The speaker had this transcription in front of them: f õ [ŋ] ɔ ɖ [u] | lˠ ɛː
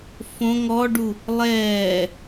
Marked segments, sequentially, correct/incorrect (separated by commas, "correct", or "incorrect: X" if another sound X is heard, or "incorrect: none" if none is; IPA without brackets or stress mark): correct, correct